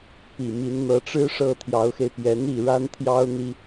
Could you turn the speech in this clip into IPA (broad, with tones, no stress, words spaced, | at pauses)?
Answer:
pi˨˩mi˧˥nn̪ɤ˧˥ʈ͡ʂɻ̩˥ ʂɤ˥˩t̪ʰjɑ˧˥ʊ̯xe˧ɪ̯ pjɛ˧˥n̪i˥˩ ɻa˥nt̪ʰjɑ˥ʊ̯n̪i˥